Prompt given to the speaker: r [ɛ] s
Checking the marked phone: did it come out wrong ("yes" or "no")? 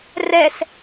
no